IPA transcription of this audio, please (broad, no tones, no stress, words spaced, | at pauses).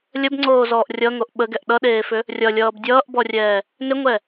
lʲəbŋ͡ǀoːzɔːʔ rʲʌŋoʔ ɓəɡɛʔ ɗʌɗeːfʏ | rʲʌlʲʌːb dʲʌːʔbɔrʲɛː | nʏŋʷɛ